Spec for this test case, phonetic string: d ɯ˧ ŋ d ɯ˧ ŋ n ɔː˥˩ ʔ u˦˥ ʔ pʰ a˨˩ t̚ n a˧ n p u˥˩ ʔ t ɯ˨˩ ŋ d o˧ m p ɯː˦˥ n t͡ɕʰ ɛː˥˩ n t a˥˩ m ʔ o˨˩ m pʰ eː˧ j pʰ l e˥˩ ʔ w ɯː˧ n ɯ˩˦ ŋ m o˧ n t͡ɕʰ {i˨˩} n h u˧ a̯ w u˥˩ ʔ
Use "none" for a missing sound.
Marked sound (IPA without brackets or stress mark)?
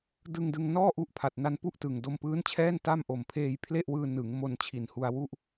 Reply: i˨˩